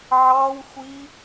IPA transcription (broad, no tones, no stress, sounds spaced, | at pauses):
ʕ ɑ w xʷ i